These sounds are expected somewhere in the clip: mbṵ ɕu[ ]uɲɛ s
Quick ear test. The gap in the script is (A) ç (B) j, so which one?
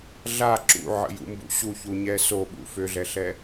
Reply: A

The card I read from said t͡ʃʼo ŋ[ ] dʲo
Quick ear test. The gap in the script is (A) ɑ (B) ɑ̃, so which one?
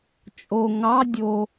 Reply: A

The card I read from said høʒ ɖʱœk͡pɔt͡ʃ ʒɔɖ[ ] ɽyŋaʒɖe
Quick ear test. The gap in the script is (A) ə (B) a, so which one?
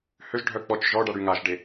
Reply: B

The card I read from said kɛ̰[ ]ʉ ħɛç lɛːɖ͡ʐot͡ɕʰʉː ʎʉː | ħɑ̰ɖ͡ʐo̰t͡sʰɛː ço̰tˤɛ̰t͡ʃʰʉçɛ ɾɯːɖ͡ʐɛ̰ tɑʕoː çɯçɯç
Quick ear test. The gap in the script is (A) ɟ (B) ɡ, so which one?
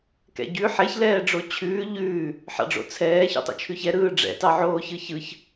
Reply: A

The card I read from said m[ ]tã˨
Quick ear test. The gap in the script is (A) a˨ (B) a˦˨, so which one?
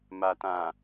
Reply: A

